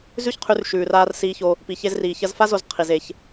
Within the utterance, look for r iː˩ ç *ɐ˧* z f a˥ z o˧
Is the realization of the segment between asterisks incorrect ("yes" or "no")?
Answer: no